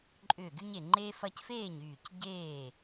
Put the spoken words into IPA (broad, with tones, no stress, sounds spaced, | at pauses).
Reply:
ǃʼ ʏː˧˩ ɡ y˦ ɲ e˧˩ ŋ͡ǃ e˦ f ɐ˦ c f eː˥˩ ɲ yː˧˩ c ɟ eː˥˩